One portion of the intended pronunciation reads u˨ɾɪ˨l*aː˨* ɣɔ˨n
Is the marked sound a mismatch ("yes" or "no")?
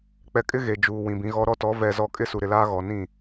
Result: yes